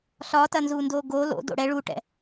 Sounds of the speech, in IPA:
ɬ ɒ t ɐ n z uː n d oː ɡ o l o̰ d o̰ ɽ ɛ ɭ u ʈ ɛ̰

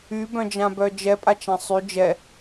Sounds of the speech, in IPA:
y b œ̃ d͡ʒ ã b œ d͡ʒ ɛ pʼ a t͡ʃ ã sˤ y d͡ʒ ɛ

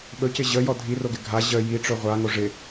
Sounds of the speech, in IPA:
ɓ ɵ c ɪ ʑ ə j ɔ dʱ i r o ɡ ɪ ɡʱ a ʑ ə j i ʈ͡ʂ ɵ ʁʷ a ŋ o ʐ ɪ

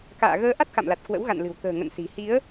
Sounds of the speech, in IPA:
k a̰ː˧˨ ɣ əː˧ ʔ a˦˥ t̚ k a̰˧˨ m l a˨˩ t̚ k w ə̰˧˥ w ɣ a̰˧˨ n l ɨ̤˨˩ w t̪ ə̤ː˨˩ ŋ ə̰˧˨ n s i̤˨˩ h i˨˦ ə̯

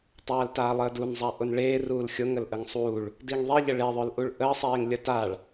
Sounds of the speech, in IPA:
tˤ aː l t aː lˠ əː d u n zˤ a ʔ ʊ n ɭ eː r uː l xʲ ʊ ŋ ə l ʔ ə ŋ sˤ uː ɭ | d i ŋ ðˤ i ʎ ə ɭ e ðˤ œ l ʔ u ɭ ʔ əː sˤ eː ŋ lʲ ə t a ɭ

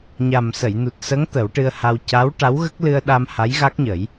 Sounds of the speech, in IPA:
ɲ a˨˩ m s ə˨˩˨ j n u˨˩ t̚ s ə˧˥ ŋ t̪ ə˨˩˦ w ʈ ɨ˧ ə̯ h a˧ w c a˧˥ w ʈ a˧˥ w ɣ ə˦˥ k̚ l ɨ˧ ə̯ ɗ a˧ m h a˧˥ j ɣ a˦˥ k̚ ɲ ə˨˩˦ j

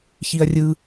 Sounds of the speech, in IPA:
ç i ɐ̯ rʲ ɯ

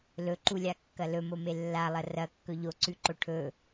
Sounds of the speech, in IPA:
l ɵ ǃ u lʲ a kː ɐ l ɵ m o m e lː a lˠ ɐ r ɐ kː ɵ ʎ o ǀ ʉ ǃ o ʈʰ ɵ

